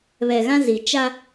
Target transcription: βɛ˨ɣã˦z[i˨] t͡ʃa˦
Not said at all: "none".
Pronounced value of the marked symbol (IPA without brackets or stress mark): i˨